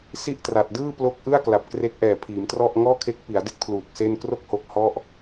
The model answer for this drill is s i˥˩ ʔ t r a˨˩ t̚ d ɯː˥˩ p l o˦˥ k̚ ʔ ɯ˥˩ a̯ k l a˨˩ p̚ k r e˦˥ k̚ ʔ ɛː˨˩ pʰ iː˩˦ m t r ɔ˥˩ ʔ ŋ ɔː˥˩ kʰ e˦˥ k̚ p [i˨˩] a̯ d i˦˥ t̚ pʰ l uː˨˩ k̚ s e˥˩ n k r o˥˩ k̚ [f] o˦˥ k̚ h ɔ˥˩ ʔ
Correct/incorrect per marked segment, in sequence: incorrect, incorrect

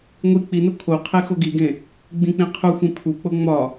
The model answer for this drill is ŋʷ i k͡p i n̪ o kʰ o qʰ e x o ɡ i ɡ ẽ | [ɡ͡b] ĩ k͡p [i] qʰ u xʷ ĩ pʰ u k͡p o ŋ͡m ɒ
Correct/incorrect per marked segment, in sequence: correct, incorrect

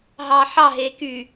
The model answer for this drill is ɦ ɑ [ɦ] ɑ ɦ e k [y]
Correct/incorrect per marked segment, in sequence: incorrect, correct

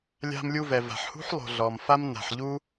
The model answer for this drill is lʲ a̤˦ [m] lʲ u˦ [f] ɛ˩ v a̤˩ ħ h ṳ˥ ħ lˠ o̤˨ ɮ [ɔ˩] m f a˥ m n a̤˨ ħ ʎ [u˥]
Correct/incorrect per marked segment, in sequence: correct, incorrect, correct, correct

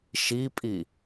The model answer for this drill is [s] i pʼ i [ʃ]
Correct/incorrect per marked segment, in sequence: incorrect, incorrect

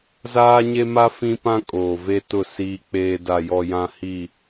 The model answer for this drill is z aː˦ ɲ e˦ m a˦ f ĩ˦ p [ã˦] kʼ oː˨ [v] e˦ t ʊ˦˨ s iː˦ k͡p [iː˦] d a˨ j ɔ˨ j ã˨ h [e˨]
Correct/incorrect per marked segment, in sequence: correct, correct, incorrect, incorrect

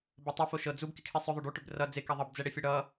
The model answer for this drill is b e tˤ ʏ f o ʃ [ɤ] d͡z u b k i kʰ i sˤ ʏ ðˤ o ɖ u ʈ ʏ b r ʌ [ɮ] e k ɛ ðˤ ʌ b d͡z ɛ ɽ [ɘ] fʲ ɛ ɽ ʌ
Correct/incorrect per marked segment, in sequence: correct, incorrect, incorrect

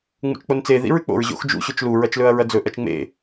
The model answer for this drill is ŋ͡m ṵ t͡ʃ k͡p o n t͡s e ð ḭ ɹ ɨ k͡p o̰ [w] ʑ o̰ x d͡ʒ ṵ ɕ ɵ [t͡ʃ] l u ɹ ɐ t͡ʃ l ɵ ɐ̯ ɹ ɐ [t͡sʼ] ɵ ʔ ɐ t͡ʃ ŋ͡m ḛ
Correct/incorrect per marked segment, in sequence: incorrect, correct, incorrect

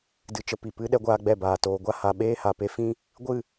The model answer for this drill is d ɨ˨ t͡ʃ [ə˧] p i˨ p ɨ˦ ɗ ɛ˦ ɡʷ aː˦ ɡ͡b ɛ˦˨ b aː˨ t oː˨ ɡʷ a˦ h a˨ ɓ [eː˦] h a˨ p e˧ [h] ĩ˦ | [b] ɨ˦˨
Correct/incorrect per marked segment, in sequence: correct, correct, incorrect, incorrect

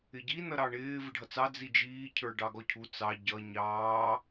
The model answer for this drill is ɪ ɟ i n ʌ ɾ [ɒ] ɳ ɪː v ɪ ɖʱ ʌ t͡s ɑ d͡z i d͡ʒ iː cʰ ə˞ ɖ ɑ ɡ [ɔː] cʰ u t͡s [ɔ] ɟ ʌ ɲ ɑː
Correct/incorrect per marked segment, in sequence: incorrect, incorrect, incorrect

